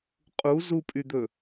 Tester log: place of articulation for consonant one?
uvular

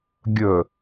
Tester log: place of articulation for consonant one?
velar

